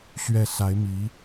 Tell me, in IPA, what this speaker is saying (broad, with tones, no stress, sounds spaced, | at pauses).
ɕ ɥ ɛ˥˩ s a˧˥ ɪ̯ m i˧˥